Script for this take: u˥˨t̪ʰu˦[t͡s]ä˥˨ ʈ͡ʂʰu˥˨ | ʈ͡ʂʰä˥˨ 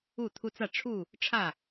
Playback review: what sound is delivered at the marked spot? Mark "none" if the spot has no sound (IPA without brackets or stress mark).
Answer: t͡s